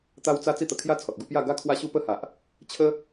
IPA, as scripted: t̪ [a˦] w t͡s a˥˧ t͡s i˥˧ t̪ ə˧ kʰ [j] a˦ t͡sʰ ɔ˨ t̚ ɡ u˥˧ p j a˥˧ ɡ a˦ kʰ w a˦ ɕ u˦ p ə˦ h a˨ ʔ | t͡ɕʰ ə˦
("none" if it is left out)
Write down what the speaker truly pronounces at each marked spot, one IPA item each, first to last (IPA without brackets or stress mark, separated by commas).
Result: a˦, j